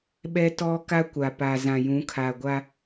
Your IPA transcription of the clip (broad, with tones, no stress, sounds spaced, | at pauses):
ɓ ɛ˦ t ɔ˦ k a˦ kʷ a˨ p a˨ z ã˨ j ũ˨˦ kʰ a˨ ɡʷ a˦